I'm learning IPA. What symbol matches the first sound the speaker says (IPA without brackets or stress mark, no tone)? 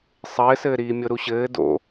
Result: sˤ